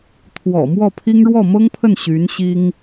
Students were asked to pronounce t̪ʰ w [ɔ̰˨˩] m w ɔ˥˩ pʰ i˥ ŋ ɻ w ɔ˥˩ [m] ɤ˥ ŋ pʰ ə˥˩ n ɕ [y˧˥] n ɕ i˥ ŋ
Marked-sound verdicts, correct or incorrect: correct, correct, correct

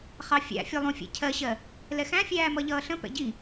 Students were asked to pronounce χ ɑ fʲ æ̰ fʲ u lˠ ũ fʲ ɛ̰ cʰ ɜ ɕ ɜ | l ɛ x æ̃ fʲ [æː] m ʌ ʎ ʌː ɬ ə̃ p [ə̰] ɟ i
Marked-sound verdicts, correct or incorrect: correct, incorrect

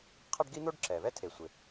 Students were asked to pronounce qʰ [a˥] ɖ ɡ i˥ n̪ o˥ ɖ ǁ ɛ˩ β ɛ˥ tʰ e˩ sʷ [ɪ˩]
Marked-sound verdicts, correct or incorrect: correct, correct

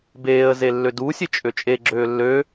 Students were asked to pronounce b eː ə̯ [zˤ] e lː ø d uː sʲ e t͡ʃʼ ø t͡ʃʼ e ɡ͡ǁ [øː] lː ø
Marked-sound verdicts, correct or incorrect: incorrect, correct

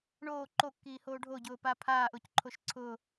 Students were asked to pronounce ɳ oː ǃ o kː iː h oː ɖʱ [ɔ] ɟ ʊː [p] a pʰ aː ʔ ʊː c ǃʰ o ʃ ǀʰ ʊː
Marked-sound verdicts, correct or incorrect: incorrect, correct

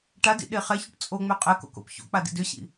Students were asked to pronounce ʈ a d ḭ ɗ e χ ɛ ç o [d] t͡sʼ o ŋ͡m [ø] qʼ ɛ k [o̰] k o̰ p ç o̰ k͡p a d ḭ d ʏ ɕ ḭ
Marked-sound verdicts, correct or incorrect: incorrect, correct, correct

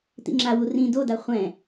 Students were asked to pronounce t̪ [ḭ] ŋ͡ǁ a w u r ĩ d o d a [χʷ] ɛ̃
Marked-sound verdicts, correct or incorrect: correct, correct

